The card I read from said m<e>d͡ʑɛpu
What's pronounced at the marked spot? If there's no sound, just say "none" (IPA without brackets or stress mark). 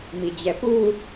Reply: i